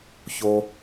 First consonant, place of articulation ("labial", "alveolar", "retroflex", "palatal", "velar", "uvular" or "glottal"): palatal